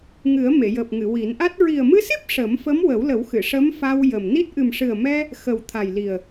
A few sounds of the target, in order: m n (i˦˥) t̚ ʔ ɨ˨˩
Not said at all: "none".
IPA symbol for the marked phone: i˦˥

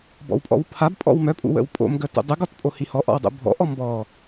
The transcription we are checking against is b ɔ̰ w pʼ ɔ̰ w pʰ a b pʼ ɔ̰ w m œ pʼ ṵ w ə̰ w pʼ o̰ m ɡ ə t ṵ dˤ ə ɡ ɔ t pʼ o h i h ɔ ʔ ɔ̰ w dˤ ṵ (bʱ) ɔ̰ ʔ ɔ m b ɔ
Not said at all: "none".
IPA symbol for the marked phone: bʱ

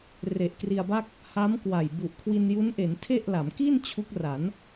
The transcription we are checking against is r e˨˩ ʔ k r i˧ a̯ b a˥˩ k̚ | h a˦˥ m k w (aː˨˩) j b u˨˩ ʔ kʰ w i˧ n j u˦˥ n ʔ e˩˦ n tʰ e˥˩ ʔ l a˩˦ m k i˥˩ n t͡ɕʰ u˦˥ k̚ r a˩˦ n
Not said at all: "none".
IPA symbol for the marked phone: a˨˩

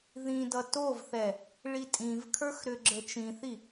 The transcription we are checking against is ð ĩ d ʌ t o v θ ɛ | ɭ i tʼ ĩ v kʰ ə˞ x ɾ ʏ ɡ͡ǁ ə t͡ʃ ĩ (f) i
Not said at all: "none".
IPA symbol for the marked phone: θ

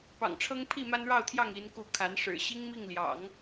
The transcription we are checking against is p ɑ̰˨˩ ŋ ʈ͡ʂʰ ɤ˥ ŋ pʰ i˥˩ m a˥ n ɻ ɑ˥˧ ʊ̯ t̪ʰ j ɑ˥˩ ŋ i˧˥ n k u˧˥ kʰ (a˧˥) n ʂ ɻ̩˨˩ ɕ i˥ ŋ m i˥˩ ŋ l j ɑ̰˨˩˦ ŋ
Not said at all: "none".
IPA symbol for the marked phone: a˧˥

